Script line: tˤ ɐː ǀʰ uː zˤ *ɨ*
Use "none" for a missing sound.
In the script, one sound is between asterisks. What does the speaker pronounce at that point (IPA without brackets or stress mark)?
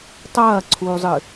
ɨ